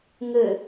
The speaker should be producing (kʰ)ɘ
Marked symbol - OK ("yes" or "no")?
no